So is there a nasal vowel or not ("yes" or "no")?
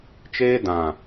yes